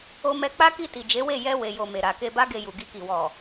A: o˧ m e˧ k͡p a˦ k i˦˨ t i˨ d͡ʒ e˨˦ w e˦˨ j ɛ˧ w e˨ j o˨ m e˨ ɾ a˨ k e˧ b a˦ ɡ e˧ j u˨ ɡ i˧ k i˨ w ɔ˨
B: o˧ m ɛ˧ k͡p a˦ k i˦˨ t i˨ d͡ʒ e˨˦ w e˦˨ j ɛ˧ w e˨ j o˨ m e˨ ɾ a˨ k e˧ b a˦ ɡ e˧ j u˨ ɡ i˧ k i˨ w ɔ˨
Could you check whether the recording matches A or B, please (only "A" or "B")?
B